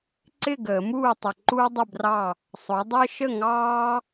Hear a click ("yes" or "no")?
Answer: yes